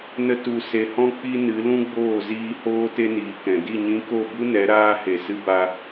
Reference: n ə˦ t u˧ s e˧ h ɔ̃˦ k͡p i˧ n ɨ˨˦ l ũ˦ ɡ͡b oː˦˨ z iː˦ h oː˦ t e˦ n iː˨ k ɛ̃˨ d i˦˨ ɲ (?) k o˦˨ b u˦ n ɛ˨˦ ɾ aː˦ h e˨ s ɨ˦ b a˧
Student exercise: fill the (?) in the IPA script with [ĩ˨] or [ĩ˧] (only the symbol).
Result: ĩ˧